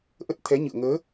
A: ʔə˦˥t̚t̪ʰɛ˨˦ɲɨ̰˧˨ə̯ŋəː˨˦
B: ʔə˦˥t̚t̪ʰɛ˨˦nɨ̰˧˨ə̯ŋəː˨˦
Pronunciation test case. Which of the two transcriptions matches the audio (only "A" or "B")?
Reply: A